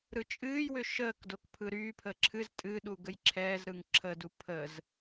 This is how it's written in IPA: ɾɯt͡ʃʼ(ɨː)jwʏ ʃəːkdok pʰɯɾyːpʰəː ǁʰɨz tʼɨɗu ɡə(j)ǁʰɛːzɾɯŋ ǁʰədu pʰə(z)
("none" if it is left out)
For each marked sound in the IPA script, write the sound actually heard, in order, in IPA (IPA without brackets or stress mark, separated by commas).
ɨː, j, z